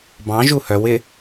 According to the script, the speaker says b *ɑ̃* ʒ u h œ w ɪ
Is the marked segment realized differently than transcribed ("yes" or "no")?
no